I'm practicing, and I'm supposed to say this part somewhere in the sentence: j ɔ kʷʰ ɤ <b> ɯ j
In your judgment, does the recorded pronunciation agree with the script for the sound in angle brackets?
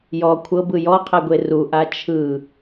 yes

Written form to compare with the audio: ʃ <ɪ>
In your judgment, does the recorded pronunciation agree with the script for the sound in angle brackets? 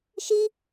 no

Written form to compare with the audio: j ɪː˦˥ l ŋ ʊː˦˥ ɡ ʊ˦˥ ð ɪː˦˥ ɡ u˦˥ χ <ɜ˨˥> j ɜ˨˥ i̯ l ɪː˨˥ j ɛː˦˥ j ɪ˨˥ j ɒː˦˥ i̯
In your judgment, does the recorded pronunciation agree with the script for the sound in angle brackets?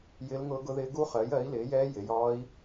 yes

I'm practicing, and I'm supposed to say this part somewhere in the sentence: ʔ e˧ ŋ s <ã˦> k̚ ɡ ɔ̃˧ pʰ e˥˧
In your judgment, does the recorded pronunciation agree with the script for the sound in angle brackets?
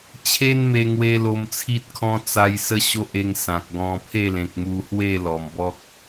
no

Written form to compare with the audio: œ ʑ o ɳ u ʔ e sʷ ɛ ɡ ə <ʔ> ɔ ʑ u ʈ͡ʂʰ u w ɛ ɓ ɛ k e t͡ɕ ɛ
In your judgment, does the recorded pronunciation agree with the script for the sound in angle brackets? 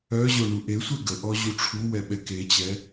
yes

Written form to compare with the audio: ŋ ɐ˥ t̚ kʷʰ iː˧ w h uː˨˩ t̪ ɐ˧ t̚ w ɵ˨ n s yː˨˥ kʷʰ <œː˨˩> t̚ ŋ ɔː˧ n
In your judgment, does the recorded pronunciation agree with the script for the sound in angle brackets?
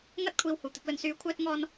no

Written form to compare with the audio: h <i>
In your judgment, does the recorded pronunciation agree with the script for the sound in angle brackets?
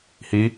yes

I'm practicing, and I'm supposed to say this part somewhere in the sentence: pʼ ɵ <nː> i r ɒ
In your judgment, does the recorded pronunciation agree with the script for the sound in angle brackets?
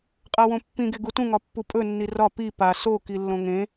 yes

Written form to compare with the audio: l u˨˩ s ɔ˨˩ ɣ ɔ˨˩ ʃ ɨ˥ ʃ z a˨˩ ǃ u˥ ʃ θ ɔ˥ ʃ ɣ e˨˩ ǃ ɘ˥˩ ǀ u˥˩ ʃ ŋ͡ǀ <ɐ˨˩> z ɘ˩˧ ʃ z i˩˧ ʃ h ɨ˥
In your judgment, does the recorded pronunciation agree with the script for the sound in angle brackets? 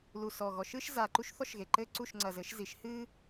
yes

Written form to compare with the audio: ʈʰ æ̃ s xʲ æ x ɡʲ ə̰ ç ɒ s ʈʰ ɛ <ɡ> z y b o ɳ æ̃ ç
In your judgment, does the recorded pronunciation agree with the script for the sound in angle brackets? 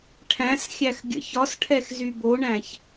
no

